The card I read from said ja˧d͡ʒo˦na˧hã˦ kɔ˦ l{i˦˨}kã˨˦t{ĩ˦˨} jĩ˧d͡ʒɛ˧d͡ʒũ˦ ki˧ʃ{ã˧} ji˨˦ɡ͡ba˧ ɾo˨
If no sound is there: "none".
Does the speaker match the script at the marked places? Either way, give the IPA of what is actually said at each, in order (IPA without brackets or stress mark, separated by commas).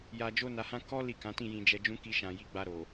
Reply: i˦˨, ĩ˦˨, ã˨